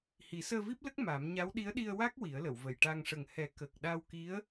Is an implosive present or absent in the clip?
present